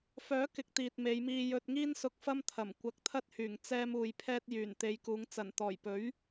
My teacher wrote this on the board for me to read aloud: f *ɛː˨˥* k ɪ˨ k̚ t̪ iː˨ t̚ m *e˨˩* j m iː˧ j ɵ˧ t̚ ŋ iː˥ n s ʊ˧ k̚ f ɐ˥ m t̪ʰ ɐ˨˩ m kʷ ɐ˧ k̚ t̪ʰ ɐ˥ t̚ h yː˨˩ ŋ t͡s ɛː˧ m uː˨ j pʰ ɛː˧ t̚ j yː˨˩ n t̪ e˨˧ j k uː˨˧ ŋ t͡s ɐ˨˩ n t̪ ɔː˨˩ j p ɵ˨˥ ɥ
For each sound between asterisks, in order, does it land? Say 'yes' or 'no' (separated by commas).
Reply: no, no